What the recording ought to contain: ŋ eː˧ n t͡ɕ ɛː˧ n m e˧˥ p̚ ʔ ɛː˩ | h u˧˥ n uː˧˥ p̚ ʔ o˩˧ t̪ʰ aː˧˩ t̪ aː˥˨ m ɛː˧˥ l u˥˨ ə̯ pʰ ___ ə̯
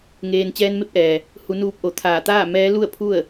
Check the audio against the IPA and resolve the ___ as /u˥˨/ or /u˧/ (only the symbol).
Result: u˥˨